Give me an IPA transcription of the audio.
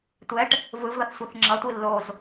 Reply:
tʷ ɛ ʈ | v ɯ v ð ʌ θ sʷ ɛ θ ŋ͡ǁ ʌ tʷ i lː o z

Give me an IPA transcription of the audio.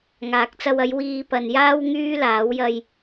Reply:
ŋ aː˨ k̚ t͡s ɐ˧ w ɐ˨˧ j w iː˧ p ɐ˨ n j aː˥ w ŋ yː˥ l aː˨˥ w j ɐ˧ j

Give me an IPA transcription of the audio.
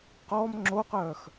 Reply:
q ɔ m ŋ͡ǁ o q œ x

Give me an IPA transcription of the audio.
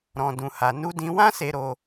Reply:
ɾ ɔ̃˧ d ũ˧ h a˧ n u˦ d ĩ˦ w ã˦ s e˧ ɾ o˧

